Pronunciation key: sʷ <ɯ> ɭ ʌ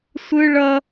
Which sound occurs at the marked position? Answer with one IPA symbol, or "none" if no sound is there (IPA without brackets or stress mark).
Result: ɯ